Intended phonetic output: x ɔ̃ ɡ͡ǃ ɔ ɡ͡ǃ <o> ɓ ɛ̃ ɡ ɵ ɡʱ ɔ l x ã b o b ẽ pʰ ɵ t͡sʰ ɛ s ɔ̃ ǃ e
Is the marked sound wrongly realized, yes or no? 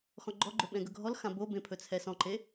yes